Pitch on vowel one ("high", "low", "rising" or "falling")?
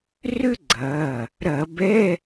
high